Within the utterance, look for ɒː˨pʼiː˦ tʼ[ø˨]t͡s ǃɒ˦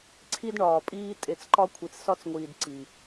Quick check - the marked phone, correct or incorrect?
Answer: incorrect: e˨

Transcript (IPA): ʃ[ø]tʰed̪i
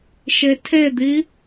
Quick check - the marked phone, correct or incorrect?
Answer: incorrect: e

